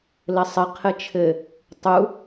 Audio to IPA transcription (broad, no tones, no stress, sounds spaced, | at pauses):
l ɘ sˤ ɘ qʰ ɘ t͡ʃʰ ɘ | tˤ u